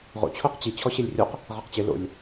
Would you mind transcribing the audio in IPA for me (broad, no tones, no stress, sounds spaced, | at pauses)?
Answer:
ʁ o̰ t͡ɕʰ o q t͡ɕ i t͡ɕʰ ɔ ɕ e lʲ rʲ o q | ʁ a q t͡ɕ ɪ l o̰ lʲ